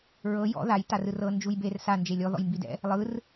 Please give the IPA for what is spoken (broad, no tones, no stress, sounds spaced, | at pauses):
ɹ ɤ j ɔ̰ ð a j t a r ɯ r ɤ n d͡ʒ u j b e r s a n d͡ʒ e lʲ ɔ ð ɔ̰ j m b i d ɛ̰ | lˠ ɯ r